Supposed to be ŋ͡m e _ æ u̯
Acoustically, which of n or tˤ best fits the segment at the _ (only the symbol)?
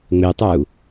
tˤ